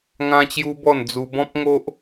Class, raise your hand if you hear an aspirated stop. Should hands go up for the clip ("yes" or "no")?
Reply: no